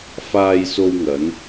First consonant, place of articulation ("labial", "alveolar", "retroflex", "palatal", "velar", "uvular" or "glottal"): labial